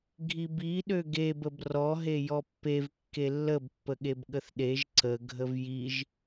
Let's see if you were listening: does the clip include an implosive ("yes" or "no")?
yes